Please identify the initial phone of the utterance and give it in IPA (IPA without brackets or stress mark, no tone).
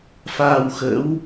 f